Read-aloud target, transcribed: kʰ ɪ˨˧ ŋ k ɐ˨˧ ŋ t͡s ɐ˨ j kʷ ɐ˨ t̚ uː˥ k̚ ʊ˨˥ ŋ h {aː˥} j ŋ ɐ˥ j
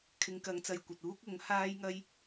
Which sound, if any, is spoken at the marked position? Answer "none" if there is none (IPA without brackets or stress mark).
aː˥